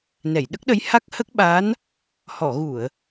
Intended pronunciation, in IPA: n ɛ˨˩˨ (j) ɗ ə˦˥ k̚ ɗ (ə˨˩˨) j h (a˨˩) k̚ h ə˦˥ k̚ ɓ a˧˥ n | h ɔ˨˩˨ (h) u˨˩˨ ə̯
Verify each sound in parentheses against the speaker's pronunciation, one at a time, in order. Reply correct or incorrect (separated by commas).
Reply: correct, incorrect, incorrect, incorrect